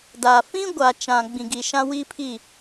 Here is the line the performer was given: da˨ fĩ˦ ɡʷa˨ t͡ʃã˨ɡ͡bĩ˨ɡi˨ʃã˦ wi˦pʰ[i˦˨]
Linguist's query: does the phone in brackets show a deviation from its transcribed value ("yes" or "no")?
no